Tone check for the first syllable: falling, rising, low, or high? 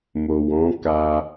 low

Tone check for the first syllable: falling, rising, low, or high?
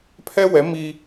high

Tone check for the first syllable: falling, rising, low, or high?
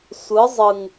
rising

